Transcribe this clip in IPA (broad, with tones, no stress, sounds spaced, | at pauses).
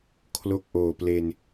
kʰ l o˦˥ k̚ ʔ oː˨˩ p l e˧ n